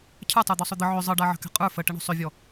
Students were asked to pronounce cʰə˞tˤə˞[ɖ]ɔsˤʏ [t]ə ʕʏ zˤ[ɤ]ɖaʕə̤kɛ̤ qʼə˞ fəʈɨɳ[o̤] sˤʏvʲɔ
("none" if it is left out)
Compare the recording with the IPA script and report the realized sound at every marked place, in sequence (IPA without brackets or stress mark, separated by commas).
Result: d̪, d̪, ɤ, o̤